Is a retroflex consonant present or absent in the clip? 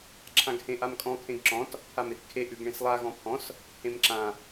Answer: present